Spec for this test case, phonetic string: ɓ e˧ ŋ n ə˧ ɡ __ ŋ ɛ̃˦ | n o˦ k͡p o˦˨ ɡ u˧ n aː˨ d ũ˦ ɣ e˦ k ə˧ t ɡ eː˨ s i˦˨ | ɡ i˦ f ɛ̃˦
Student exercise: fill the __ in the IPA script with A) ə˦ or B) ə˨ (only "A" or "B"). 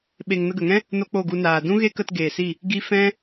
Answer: B